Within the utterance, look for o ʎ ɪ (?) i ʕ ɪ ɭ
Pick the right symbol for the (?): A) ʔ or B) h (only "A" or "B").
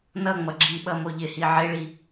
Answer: B